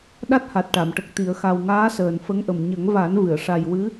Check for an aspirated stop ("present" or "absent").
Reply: absent